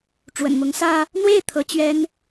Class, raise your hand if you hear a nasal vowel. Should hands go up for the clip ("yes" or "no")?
no